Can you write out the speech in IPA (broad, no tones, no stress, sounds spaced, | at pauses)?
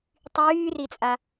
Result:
tˤ yː r i t͡sʼ a